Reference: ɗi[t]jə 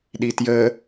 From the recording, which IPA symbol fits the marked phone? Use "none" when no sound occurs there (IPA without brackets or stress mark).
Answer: t